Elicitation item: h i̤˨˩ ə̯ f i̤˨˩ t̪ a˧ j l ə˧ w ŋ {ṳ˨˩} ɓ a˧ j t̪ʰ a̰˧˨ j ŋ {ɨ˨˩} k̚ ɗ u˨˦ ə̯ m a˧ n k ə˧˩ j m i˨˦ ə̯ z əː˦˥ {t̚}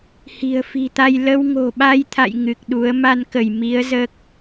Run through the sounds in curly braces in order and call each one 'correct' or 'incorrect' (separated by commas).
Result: incorrect, correct, incorrect